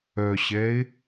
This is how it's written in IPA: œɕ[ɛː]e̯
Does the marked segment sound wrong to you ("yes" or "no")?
no